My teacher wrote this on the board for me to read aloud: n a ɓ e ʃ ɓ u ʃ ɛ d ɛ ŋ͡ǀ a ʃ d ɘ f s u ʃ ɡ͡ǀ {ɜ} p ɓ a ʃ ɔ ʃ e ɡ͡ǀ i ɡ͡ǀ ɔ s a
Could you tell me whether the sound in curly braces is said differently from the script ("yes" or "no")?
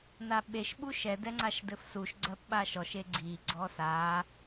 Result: no